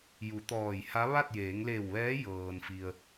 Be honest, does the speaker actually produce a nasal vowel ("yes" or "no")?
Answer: no